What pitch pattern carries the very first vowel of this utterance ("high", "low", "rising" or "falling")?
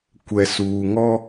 low